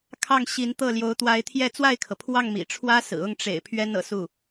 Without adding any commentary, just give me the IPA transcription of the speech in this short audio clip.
kʰɑ˥˩ŋɕi˧˥nt̪ɤ˥˩ ljo˧˥ʊ̯t̪wa˧˥ɪ̯t̪ʰjɛ˥˧ t͡swa˥˩ɪ̯kʰɤ˩pʰwɑ˥˩ŋ mḭ˨˩ʈ͡ʂʰwä˥sɹ̩˨˩ ʊ˥˩ŋʈ͡ʂḛ˨˩ɪ̯ pʰɥɛ˥nɤ̰˨˩su˥˩

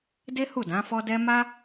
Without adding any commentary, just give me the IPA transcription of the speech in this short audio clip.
de˦hu˦˨ dã˨˦fɔ˦dɛ˦ ma˦

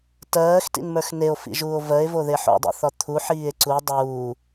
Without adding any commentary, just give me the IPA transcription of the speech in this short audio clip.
tɜːxtḭnmə˞x neo̯fḭʒuːo̯ vɜe̯voðe ħo̰dˤḭθɒ t̪ʰuħiːe̯ ǀu dˤuː

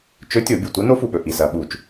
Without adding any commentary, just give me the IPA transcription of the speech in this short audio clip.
t͡ʃɵ˧˥tʲo˧˩˧bʲu˩ tʷɐ˧˥ no˧˥fu˩ɓɵ˩ ʔi˩sɐː˩ɓu˧˩˧t͡ʃ

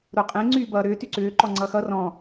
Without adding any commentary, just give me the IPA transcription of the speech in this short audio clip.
ɾoqʼẽ ŋ͡ǀyːbʌːɾʏː tyǀʏː ǃɔŋ͡ǀʌːxʌ rɔ̃

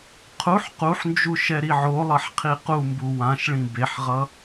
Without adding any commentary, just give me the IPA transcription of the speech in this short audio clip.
qʰuħ quħnd͡ʒu ʃɛɾiʕolˠʌħ qʰiqumbu wãʃɭĩ beħʁʌ

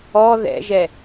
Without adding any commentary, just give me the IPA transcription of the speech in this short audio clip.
ɔ ðɛ̰ʒɛ

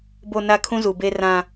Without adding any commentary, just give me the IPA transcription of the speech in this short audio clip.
bo˨ na˦ kʰũ˦zu˨be˦ rã˦

